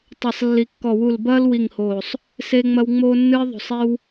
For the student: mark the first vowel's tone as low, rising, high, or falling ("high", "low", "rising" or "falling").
low